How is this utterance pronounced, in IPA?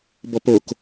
b ɔ p o k

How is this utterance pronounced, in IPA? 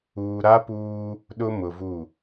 uː˨ ɾ a˦ p uː˦ | ɗ ʊ˦ m ʊ˨ v u˦˨

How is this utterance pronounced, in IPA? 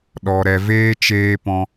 ɗ ɔ˨ ɾ ɛ˨ v eː˧ t͡ʃ eː˧ p ɔ̃˧

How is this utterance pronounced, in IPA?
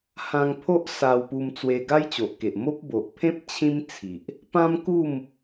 h ã˧ ŋ pʰ o˦ ʔ s a˧ w p u˧ m t͡s w e˧ ɡ a˦ j t͡ɕ o˨ ʔ k e˨ ʔ m o˦ p̚ b o˨ ʔ pʰ ẽ˦ p̚ t͡ɕʰ ĩ˦ m t͡sʰ i˨ ʔ | p ã˦ m k u˥˧ m

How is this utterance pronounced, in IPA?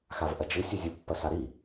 x a v ʔ ɐ d͡ʒ ɨ sʲ e zʲ u pː ɐ s a ɾ i

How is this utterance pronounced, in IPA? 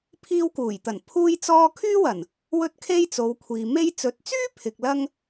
pʰ iː˧ w k uː˨˩ j t̪ ɐ˨˩ n pʰ uː˥ j t͡s ɔː˥ kʰ yː˥ w ɐ˨˩ n | w ɵ˥ t̚ kʰ e˥ j t͡s o˨˧ w kʷʰ iː˨ m e˧ j t͡s ɵ˨˥ t̚ t͡s yː˥ pʰ ɪ˨ k̚ l ɐ˧ ŋ

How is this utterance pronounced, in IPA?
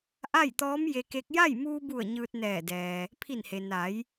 ʔ a˥˨ j t̪ ɔː˧˥ m j e˧ k e˧˥ k̚ j a˥˨ j m uː˧ b u˧˩ ə̯ ɲ ɯː˧ t̚ n ɛː˧˩ d ɛː˩ | pʰ i˧˩ n h e˩ n a˩˧ j

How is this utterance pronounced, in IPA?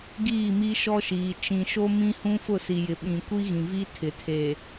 ɡ iː˦˨ m i˦ ʃ ɔ˦ ʃ iː˨ t͡ʃ ĩ˨ ʃ o˦ m ĩ˦ h ũ˦ f ʊ˦˨ s i˨ j ɪ˨ ɓ ĩ˨ kʷ i˦ ɣ ĩ˨ v i˦ tʰ ɪ˨ tʰ eː˨

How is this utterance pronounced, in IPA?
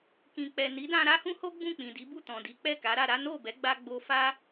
k ĩ˨ k͡p ɛ˨ n i˨˦ d ã˧ ɾ a˦ h ũ˦ h o˦ ɡ͡b ũ˦˨ k͡p ĩ˨ d i˨˦ b u˦˨ t ɔ̃˨ d i˨˦ k͡p ɛ˦˨ k a˨˦ ɾ a˧ ɾ a˦ n o˦˨ b ɛ˨˦ ɡ͡b a˧ ɡ͡b o˧ f a˦

